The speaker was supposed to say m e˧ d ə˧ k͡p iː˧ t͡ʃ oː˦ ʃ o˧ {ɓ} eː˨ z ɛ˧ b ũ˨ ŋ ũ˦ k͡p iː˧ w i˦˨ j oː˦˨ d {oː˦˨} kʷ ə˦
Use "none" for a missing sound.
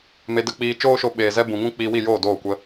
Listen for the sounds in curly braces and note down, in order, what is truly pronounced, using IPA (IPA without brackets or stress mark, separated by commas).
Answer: ɓ, oː˦˨